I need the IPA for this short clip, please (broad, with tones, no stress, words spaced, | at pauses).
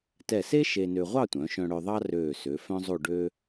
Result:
tɛ˧˩se˥ ʃe˧nø˧ ʁʷɑ˥˧tʷœ̃˩˧ʃœ̃˧ ɽœ˧ðˤɑ˥ røː˧˩sø˩˧ fœ̃˥zˤo˥˧ ɖø˥